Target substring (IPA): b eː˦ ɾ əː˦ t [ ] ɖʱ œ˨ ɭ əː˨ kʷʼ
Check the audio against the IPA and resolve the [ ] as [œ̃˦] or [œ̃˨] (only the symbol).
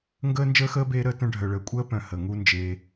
œ̃˦